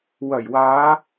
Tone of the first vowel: low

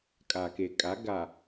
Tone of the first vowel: low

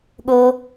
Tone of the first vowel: high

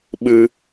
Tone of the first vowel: high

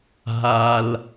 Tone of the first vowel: low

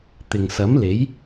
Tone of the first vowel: low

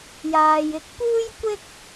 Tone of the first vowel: low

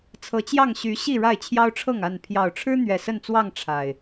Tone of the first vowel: rising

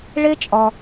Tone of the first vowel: high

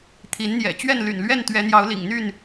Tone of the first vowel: rising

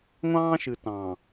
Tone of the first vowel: high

